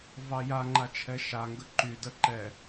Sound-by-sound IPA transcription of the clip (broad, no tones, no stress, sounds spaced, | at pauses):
v ɑ j a ŋ͡ǃ a t͡ʃʰ ɛ ʃ a ŋ ɡ ə ǃ y d ə ǃ ɛ